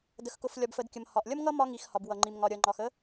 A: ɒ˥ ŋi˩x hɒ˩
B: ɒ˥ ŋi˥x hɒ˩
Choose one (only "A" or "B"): A